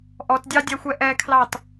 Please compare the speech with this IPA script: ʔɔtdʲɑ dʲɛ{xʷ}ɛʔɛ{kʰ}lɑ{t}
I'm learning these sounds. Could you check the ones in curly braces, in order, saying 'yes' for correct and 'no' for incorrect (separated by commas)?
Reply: yes, yes, yes